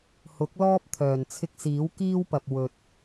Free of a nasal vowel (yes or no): yes